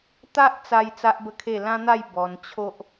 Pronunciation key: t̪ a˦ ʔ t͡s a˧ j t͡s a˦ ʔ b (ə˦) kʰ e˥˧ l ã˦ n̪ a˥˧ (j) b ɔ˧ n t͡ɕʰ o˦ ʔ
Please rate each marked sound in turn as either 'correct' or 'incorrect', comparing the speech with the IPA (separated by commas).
incorrect, correct